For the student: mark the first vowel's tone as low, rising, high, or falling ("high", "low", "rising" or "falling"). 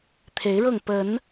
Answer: rising